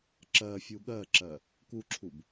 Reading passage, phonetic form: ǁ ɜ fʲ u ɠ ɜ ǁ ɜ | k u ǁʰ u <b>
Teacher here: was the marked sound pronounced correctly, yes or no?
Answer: yes